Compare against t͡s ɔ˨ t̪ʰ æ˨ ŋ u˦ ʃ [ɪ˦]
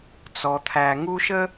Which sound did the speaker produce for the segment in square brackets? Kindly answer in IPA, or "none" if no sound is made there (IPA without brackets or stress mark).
ə˦